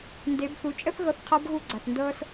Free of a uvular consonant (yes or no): no